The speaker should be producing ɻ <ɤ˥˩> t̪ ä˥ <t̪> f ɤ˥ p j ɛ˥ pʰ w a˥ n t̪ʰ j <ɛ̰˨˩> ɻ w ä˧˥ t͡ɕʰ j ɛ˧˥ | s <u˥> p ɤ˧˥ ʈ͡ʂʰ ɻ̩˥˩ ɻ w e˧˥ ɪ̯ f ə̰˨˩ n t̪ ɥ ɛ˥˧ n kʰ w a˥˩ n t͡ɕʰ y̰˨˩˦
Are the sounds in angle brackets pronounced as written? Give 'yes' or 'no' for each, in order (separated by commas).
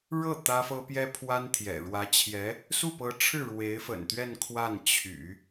yes, no, yes, no